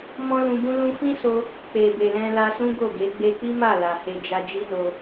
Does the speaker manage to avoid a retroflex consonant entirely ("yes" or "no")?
yes